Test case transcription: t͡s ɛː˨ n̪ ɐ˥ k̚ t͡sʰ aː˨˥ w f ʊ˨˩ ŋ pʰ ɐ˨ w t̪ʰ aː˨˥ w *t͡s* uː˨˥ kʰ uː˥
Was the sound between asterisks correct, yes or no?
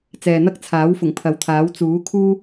yes